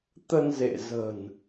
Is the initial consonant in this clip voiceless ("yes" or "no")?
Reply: yes